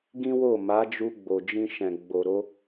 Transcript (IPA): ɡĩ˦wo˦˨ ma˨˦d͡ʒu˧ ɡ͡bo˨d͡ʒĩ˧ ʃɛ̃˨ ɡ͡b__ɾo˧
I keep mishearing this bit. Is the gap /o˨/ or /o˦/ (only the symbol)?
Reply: o˨